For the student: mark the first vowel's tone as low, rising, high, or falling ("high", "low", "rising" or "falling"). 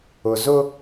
low